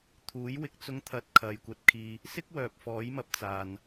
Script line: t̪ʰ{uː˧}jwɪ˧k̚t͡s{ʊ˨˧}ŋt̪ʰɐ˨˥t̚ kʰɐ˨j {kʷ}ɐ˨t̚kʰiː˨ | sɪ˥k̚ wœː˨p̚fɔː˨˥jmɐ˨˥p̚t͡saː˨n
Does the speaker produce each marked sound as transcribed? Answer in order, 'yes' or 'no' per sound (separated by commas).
no, no, yes